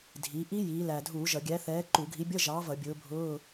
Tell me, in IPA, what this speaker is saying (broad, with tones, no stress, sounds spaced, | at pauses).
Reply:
dʱ i˩˧ ʔ i˦˥ j iː˩˧ l æ˨˩ dʱ uː˧˩˧ ʒ ʌ˧˩˧ ɡʲ æ˨˥ θ ɛː˨˥ ǃ u˧˩˧ ɡʱ i˨˥ bʲ ʌ˧˥˧ ʒ ɑː˨˥ v ʌ˧˩˧ bʲ ʊː˨˥ bʱ ʊː˧˥˧